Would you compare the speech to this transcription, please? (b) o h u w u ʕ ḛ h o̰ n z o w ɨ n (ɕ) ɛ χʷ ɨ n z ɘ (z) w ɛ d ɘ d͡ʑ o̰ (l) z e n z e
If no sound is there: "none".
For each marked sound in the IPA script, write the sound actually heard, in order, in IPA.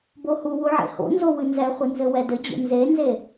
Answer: b, z, none, n

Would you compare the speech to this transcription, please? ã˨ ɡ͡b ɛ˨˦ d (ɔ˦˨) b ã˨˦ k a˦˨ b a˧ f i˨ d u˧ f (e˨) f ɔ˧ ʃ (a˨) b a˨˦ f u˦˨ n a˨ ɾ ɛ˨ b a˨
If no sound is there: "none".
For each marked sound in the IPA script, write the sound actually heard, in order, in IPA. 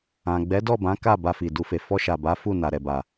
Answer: ɔ˦˨, e˨, a˨

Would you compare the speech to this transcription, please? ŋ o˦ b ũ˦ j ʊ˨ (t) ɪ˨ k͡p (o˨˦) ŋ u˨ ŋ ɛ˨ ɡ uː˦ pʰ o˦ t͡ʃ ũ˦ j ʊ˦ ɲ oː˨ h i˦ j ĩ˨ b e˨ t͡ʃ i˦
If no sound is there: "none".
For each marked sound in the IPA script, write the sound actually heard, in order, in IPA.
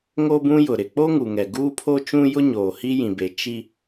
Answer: ɾ, o˦

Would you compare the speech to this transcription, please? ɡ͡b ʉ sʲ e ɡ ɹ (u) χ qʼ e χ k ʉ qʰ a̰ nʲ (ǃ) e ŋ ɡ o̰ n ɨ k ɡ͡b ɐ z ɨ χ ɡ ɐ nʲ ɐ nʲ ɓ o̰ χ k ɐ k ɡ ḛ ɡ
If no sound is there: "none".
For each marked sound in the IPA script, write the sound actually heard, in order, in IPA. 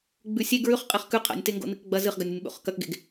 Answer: ʉ, t

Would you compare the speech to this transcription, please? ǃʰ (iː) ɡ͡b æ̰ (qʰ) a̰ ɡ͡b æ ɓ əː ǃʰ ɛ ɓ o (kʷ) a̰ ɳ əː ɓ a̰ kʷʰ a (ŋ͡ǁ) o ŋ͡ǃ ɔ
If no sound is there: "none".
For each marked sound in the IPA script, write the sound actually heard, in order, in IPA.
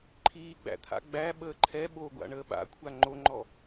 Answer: iː, t̪ʰ, ɡʷ, ŋ͡ǃ

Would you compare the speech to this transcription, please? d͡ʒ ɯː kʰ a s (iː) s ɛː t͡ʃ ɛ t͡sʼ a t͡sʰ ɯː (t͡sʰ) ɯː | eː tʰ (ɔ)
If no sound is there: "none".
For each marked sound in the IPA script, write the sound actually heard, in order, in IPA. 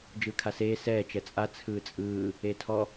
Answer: eː, t͡sʼ, ɔ

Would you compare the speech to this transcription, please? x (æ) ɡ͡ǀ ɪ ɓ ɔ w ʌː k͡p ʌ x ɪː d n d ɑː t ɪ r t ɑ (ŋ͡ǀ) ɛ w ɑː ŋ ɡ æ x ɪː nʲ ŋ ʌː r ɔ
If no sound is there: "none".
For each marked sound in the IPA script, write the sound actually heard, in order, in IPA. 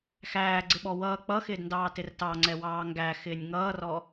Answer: æː, ŋ͡ǀ

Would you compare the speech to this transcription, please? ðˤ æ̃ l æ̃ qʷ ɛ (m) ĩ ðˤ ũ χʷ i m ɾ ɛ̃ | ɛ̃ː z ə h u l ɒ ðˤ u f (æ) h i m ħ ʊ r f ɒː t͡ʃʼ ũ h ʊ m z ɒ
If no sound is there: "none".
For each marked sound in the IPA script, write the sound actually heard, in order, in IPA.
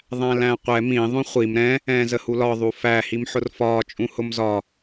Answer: m, æ

